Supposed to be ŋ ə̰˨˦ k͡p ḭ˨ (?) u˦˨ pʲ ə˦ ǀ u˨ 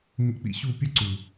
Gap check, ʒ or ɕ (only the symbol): ɕ